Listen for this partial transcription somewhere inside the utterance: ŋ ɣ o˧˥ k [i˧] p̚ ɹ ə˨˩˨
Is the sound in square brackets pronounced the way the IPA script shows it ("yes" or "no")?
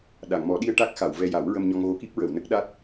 no